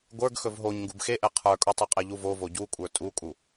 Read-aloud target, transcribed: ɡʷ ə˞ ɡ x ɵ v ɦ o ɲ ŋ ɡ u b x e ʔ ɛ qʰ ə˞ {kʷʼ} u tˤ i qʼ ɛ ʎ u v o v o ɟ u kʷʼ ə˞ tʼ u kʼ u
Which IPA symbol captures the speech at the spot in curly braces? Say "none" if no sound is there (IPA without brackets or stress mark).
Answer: kʼ